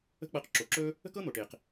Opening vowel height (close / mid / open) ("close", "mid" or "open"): mid